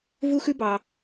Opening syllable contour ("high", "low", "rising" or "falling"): high